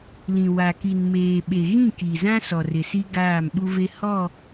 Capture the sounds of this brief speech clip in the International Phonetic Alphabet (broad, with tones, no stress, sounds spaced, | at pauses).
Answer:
l ĩ˨ w a˨ k i˨ n m eː˨ ɓ e˨ ɣ ĩ˦˨ k i˨ z ã˦ s ɔ˨ r ɪ˨ s i˦ ɡ aː˦˨ m ɓ u˦ v e˦ h ɔ˦˨